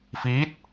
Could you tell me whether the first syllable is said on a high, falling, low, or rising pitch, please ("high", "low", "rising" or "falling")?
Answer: rising